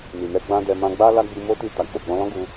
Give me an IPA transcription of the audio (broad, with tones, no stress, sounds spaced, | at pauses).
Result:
n i˨ n ɛ˧ ɡ͡b ã˦ d ɛ˧ m ã˧ ɡ͡b a˦ l a˦ ɡ͡b i˧ m o˦ t i˧ t a˨ k͡p o˨ ɡ͡b ɔ̃˧ l ɔ̃˦ ɡ u˧